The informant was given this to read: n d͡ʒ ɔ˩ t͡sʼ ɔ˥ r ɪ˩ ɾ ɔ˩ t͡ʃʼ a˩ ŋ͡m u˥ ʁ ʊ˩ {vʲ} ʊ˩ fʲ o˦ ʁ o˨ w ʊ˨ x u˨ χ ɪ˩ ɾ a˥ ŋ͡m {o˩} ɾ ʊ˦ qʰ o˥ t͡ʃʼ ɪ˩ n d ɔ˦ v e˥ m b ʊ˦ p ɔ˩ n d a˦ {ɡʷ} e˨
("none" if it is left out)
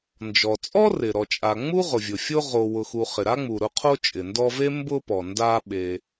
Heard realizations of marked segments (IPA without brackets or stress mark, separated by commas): vʲ, u˩, ɓ